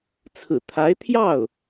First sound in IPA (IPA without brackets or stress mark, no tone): t͡sʰ